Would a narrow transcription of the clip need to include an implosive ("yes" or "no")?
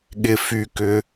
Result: yes